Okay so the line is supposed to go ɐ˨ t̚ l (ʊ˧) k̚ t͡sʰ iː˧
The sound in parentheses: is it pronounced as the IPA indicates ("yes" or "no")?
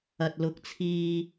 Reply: no